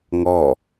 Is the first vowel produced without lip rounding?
no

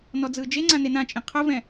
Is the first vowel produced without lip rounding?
no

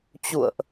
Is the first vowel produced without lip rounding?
no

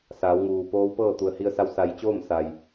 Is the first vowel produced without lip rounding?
yes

